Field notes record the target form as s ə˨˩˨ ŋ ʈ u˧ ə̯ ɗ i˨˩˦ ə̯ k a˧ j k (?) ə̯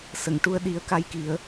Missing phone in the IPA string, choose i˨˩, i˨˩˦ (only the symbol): i˨˩˦